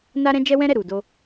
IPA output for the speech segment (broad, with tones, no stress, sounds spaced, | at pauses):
n a˦ ɾ ɛ̃˦ d͡ʒ ɛ˦ w ɛ̃˦ ɾ ɛ˦˨ ɾ u˨ d o˧